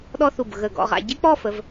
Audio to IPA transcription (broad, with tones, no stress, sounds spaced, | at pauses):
ɗ ɔ˥ θ u˧˩ b ɣ ə˧˩ ɡ ɔ̰˧ ʁ a̰˧ ɟ e˥ k͡p ɔ˥˧ f ə˩˧ v